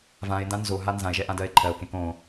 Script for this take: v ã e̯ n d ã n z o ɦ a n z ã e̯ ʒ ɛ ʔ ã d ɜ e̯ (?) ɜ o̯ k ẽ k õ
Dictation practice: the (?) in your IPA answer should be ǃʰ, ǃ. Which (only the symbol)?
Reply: ǃʰ